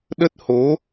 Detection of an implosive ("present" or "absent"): present